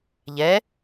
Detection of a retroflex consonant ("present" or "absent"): absent